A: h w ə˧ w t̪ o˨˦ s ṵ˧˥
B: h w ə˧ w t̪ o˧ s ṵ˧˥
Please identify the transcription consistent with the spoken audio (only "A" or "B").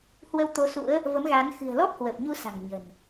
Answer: A